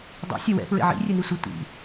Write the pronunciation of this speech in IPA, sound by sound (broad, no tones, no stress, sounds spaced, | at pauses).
dˤ ḭ sʲ ɛ w ɛ̰ p ɹ ḛ ʕ ḭ rʲ ɨ n i sʷ ɨ tʷ ḭ